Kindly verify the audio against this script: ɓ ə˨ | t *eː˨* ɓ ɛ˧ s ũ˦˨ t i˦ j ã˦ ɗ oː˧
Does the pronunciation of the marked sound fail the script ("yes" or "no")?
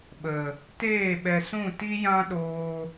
yes